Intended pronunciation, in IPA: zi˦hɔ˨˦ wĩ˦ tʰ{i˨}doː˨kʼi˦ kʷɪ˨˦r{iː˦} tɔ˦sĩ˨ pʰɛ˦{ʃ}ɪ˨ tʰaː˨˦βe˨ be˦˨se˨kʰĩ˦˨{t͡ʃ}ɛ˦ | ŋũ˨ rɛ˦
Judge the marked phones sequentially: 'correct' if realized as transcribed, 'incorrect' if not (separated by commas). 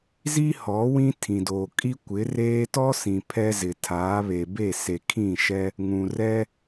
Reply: incorrect, incorrect, incorrect, incorrect